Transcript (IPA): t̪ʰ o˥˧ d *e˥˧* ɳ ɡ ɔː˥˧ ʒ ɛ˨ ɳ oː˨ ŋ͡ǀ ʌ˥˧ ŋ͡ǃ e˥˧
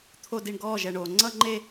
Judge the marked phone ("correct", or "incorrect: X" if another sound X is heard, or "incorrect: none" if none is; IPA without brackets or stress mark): incorrect: i˥˧